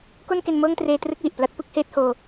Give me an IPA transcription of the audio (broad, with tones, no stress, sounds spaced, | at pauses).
k o˥˩ n k e˧ n m ɤː˥˩ ŋ t r eː˧ t r ɯ˥˩ k̚ w i˨˩ ʔ p l a˦˥ t̚ p ɯ˦˥ k̚ h eː˦˥ t̚ h oː˧